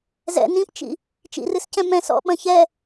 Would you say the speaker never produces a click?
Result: yes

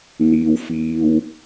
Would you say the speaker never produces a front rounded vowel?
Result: yes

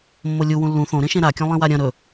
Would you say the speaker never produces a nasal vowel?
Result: no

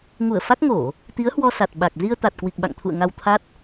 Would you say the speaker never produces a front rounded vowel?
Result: yes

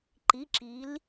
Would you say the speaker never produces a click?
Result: no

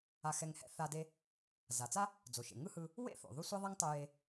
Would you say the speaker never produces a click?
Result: yes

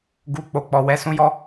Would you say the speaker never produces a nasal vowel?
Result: no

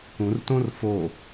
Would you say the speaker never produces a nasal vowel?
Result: no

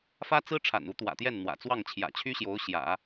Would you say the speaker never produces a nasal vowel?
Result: yes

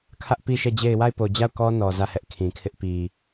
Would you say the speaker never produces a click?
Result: yes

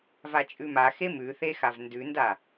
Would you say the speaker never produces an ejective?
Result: no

